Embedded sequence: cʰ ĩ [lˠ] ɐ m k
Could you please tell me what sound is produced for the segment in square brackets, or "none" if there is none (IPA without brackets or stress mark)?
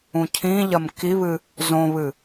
ʎ